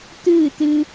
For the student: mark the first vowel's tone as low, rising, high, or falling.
falling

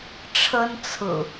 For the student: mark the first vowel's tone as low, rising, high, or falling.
high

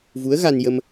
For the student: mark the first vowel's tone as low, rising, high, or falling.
rising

